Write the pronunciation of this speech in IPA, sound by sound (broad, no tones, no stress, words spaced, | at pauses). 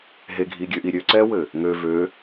ɦeɡʱiɡʲøʔi ɾʲøǀɛwɘ | ŋø vø